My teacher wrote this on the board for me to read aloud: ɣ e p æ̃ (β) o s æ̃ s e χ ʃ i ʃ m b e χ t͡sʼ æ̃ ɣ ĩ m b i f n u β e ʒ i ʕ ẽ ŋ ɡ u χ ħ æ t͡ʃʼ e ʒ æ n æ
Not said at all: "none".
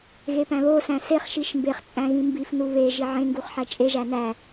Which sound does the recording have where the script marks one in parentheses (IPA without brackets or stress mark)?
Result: β